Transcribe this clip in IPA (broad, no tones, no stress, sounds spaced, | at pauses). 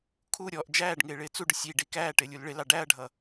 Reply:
kʰ u ɾʲ ɔ ʔ d͡ʒ æː ɖ ŋ ɪː ɭ ɪː t͡s u ɖ ʊ sʲ i ɖ i k æː ʈ ɪː lʲ u l ɭ ɪ l ɑ ɖ æ ɐ̯ ɖʱ ʌ